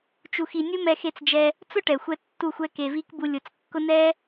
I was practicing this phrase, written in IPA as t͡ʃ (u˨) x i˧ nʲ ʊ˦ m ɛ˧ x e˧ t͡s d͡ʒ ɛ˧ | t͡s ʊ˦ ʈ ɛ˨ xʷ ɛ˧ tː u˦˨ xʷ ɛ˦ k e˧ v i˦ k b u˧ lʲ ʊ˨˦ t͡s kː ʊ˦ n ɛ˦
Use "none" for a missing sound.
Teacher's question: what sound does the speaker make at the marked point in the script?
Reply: u˧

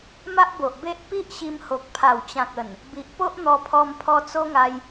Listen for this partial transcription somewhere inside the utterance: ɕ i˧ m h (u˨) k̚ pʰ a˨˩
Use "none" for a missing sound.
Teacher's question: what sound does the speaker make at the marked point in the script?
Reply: o˨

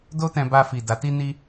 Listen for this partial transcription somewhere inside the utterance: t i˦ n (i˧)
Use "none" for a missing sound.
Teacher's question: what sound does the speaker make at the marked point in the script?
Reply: i˦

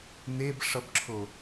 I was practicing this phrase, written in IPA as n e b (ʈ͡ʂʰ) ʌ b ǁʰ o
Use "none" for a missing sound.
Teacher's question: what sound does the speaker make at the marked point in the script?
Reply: ʂ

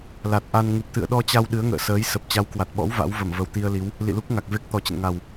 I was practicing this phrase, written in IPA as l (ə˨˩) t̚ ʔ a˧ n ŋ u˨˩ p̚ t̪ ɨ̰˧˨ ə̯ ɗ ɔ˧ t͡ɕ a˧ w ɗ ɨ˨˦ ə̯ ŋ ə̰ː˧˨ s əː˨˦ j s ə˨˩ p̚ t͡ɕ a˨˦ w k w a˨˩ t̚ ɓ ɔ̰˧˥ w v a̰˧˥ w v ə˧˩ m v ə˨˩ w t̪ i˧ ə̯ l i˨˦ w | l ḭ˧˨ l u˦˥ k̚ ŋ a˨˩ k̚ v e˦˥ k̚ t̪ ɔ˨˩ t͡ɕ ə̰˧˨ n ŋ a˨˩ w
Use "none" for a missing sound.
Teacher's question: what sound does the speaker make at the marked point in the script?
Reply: a˨˩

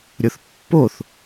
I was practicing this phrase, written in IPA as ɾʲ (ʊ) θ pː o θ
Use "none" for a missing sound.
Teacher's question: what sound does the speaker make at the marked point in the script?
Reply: ʊ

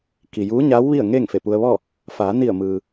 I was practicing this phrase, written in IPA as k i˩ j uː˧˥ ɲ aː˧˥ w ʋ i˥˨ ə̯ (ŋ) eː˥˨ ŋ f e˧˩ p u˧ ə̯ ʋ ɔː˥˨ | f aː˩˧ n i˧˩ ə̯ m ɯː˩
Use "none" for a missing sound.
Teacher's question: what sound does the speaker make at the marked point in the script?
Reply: ŋ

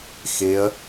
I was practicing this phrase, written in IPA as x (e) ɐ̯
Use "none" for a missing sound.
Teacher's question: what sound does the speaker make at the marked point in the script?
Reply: e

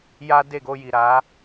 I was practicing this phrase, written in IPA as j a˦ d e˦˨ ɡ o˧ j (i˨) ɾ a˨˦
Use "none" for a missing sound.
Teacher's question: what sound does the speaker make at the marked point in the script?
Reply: i˨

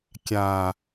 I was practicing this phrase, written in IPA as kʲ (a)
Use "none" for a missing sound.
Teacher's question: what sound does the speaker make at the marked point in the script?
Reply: a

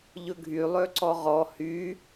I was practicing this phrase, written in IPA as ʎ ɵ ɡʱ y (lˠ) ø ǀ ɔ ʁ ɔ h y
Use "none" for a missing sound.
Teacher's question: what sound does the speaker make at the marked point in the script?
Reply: lˠ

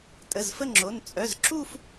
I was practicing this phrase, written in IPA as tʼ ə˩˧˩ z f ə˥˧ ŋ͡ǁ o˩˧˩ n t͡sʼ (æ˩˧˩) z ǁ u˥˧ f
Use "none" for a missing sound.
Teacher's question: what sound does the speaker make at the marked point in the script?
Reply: œ˩˧˩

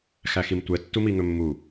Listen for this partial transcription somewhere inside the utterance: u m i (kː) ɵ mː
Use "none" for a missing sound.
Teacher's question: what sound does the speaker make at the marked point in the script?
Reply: ŋ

